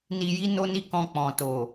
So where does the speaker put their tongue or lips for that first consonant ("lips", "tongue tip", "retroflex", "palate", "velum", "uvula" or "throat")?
tongue tip